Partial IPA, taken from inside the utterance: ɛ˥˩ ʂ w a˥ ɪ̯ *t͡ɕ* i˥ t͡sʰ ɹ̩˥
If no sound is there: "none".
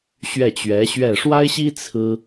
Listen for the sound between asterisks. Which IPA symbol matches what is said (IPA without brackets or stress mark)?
ɕ